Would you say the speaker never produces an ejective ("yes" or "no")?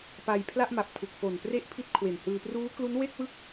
yes